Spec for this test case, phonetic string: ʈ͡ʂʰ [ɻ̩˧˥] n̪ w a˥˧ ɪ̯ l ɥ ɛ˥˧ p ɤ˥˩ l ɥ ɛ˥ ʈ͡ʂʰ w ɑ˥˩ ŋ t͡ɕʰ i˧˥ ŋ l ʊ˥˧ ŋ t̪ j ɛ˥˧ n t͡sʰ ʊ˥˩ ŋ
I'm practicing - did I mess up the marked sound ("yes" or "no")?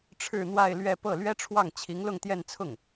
yes